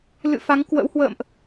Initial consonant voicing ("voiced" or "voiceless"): voiced